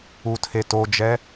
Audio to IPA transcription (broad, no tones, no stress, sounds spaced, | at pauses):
u tʰ e t o d͡ʒ ɛ